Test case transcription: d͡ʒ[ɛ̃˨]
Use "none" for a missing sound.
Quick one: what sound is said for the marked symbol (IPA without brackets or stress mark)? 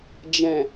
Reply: ɛ̃˨